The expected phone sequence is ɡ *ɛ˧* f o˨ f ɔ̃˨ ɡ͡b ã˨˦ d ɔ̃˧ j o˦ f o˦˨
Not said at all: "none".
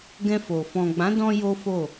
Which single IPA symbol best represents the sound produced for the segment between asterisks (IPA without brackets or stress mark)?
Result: ɛ̃˧